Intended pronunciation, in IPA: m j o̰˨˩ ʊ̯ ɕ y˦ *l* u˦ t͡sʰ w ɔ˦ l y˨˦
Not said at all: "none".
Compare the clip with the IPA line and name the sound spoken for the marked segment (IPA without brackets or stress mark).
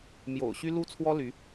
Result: l